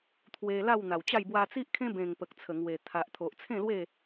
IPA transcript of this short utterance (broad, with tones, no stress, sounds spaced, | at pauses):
t̪ʰ w e˧ l a˥˧ w n̪ a˨˩ w t͡ɕ a˥˧ j b w a˧ t͡s i˦ ʔ kʰ ẽ˦ b ẽ˨˩ ŋ p ə˨ k̚ t͡sʰ ə˨˩ ŋ w e˨˩ t̪ʰ a˨ ʔ t̪ʰ o˨ ʔ t͡sʰ ẽ˥˧ l w e˥˧